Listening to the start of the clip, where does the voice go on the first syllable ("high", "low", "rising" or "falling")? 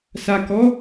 low